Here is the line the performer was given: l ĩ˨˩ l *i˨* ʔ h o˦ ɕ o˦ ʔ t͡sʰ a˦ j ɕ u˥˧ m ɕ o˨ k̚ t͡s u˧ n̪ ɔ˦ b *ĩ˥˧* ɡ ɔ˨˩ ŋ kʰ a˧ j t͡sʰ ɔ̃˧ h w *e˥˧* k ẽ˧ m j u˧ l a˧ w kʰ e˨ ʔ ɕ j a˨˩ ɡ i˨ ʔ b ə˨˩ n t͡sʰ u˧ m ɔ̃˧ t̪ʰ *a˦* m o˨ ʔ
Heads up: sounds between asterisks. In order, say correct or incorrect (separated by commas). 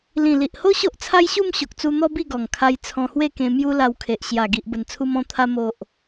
correct, incorrect, correct, incorrect